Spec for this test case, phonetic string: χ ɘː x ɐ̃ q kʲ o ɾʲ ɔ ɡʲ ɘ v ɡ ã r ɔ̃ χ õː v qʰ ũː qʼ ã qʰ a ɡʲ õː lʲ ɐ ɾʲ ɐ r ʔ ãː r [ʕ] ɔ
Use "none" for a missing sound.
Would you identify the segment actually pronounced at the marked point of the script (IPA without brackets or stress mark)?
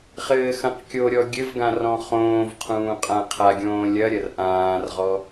ʁ